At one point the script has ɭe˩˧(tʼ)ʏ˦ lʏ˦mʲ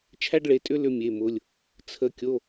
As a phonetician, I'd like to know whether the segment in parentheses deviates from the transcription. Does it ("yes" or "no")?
no